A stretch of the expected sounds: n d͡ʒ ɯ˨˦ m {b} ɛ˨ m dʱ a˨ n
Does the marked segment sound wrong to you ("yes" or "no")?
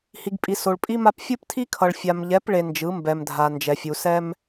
no